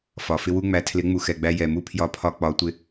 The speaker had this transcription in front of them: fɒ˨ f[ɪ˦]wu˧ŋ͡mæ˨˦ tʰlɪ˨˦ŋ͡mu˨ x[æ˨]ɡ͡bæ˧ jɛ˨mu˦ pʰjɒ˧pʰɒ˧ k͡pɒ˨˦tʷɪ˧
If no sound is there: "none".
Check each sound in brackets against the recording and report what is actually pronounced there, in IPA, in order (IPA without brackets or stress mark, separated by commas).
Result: ɪ˧, ɛ˨